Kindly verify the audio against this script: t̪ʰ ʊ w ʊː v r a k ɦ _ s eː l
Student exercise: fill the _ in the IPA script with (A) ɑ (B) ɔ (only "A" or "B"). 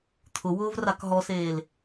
B